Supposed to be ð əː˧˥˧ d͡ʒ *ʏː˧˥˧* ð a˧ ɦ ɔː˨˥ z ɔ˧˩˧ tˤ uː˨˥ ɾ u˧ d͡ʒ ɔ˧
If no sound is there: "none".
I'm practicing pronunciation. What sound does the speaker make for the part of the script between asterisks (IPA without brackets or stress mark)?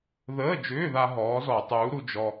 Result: ʏː˧˥˧